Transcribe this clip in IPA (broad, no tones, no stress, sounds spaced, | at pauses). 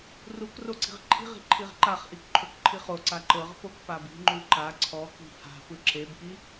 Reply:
r u k r o ǀ i̤ ʁ ǃʰ i̤ ʁ i̤ ǃʰ i ʁ ǃ a χ ʔ i k ǃʰ o k ǃʰ i χ o ǀ a ǃ ɤ ʁ p o k p a b i̤ ŋ͡ǃ u ǃ a ǀʰ ɔ k i̤ h a̤ p ɯ ǁ e b k i